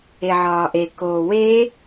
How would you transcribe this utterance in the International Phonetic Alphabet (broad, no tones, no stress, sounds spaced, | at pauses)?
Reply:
e ʕ ɒː ʔ e k oː w e